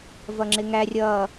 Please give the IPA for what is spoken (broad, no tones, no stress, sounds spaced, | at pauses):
v ʌ ŋ͡ǁ ɪ ŋ æ rʲ ʌː